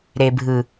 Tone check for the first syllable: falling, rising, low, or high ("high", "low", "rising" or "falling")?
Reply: low